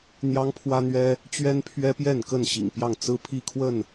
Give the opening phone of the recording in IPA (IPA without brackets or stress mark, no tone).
n̪